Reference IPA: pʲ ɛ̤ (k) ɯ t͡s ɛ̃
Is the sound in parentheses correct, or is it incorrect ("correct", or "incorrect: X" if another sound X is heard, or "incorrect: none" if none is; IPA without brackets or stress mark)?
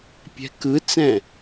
correct